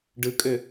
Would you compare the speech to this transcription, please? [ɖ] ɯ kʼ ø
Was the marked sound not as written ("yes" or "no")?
no